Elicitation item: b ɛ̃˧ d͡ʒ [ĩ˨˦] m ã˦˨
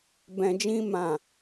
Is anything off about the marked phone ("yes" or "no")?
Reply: yes